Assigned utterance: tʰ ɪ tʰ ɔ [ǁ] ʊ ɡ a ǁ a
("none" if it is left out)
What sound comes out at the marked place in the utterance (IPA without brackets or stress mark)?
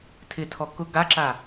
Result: k